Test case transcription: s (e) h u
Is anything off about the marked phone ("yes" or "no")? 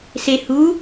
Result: no